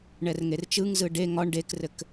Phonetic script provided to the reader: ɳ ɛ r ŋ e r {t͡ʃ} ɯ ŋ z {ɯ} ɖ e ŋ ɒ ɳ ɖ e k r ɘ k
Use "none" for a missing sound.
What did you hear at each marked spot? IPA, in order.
t͡ʃ, ɯ

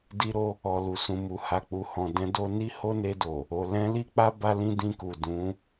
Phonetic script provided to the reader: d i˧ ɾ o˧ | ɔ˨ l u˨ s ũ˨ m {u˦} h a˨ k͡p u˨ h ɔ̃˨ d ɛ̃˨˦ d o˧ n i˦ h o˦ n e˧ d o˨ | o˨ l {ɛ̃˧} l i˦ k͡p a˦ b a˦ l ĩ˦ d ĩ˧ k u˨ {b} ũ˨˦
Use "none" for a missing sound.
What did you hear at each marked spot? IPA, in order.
u˨, ɛ̃˧, d

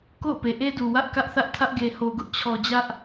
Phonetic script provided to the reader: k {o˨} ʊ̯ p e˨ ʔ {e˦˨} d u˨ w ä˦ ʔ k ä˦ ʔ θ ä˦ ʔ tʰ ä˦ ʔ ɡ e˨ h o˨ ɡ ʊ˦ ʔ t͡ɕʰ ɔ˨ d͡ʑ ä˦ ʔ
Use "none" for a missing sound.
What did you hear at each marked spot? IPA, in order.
o̰˦˨, e˦

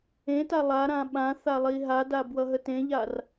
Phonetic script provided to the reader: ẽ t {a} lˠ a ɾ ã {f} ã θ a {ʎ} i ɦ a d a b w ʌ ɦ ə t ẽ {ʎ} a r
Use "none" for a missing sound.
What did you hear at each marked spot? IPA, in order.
a, ɓ, lˠ, ʎ

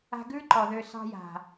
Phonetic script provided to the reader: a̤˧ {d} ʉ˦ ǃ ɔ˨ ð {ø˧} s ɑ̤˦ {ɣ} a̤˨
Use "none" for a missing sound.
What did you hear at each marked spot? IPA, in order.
ɡ, ø˧, j

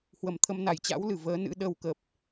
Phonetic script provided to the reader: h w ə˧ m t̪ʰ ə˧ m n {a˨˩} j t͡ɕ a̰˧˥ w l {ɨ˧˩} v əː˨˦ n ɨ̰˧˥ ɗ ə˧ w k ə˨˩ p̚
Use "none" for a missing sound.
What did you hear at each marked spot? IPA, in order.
a˨˩, ɨ˧˩

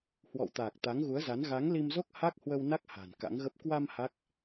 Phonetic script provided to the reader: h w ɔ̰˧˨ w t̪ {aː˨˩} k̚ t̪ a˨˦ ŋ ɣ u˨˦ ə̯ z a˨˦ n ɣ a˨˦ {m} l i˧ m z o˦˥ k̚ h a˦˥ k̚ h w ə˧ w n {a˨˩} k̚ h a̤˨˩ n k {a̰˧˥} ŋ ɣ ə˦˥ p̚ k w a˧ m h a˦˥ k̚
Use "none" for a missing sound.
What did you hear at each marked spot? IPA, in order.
aː˨˩, ŋ, a˦˥, a̰˧˥

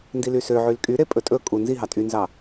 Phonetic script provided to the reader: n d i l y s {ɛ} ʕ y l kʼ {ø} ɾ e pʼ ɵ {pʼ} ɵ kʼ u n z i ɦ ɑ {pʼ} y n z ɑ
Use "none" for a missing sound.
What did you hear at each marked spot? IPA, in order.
ø, y, tʼ, tʼ

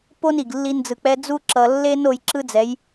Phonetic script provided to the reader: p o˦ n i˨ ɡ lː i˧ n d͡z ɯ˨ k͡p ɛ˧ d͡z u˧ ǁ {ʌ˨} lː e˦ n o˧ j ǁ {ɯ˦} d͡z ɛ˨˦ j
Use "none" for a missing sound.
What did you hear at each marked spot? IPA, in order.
ʌ˨, ɯ˦

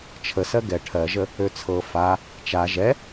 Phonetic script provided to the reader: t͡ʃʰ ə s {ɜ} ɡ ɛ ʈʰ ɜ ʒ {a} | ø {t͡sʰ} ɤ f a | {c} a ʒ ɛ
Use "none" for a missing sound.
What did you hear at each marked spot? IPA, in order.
ɜ, ə, t͡sʰ, t͡ʃ

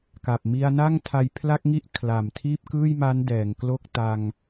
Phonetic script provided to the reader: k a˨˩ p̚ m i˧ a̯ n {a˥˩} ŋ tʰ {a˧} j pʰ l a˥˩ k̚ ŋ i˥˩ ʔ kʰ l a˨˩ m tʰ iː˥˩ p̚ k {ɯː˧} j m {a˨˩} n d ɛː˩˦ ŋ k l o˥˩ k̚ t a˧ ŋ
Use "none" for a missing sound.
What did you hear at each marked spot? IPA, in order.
a˥˩, a˧, ɯː˥˩, a˦˥

